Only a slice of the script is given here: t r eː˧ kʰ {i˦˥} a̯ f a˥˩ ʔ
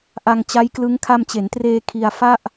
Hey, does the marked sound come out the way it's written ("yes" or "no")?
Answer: no